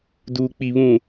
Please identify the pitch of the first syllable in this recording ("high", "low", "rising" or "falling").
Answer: low